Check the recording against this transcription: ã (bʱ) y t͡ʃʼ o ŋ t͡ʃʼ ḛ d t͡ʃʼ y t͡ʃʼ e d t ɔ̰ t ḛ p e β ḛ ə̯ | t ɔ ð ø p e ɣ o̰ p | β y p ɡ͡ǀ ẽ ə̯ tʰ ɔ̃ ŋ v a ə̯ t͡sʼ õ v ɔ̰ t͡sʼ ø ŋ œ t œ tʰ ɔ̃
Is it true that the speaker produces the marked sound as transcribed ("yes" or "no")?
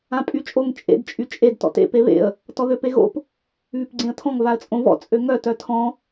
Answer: no